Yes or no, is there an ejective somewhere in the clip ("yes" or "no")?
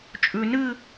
yes